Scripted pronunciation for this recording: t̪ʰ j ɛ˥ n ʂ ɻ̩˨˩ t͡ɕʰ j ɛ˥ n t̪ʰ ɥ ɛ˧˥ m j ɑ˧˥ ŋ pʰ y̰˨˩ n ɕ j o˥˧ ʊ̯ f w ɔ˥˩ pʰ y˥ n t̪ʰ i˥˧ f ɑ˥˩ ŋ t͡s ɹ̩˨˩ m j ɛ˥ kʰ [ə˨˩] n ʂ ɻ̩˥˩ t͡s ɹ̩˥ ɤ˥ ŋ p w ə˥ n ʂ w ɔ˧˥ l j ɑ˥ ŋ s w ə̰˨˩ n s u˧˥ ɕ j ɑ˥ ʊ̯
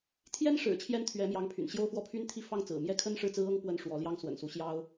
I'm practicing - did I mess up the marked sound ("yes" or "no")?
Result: yes